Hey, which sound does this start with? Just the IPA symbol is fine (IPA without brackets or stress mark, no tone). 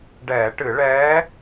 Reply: ɖ